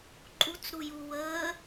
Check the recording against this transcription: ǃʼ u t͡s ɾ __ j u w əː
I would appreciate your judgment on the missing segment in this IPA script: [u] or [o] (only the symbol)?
u